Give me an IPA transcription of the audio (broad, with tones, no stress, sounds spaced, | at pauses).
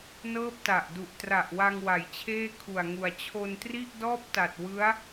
n ɤː˥˩ p̚ t a˨˩ ʔ d u˨˩ ʔ t r a˨˩ ʔ w a˧ ŋ w a˩˦ j t͡ɕʰ eː˥˩ kʰ u˨˩ a̯ ŋ u˨˩ a̯ t͡ɕʰ o˧ n t r i˥˩ ʔ d ɔː˥˩ p̚ t a˨˩ t̚ w ɯ˦˥ a̯